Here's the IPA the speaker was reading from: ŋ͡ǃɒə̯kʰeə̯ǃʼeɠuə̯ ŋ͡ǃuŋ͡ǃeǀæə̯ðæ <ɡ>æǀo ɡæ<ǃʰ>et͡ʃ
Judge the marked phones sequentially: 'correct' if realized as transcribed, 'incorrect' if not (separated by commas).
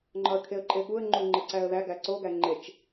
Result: correct, incorrect